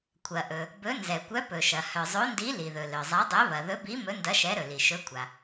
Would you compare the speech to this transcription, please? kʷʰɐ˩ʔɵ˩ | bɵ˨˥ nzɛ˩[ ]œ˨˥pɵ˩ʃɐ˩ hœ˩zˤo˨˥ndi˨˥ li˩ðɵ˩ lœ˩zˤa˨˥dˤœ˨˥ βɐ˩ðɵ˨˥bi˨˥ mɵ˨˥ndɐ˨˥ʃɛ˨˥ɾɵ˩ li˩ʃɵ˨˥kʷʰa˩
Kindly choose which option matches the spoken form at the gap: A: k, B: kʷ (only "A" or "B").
B